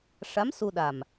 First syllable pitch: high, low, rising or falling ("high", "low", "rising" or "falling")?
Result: rising